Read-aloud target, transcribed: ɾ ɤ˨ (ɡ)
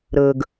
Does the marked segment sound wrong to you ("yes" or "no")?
no